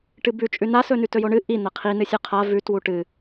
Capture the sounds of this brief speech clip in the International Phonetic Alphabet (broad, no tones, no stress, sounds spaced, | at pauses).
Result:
ʈ ɨ b ʉ t͡ʃʼ ʉ n a s ɵ n ʉ t ɵ j o ɳ ɨ ʔ i n̪ ɐ qʰ i n ɨ sʲ ʉ qʰ a v ʉ t w u ʈ ɨ